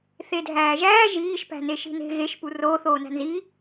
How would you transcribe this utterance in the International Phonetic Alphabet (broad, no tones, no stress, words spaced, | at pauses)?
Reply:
θedʱæːʒæː ʒiːʃ pæ̤neʃi̤ne̤ ɣeʃ puroːθ oːnæ̤nzi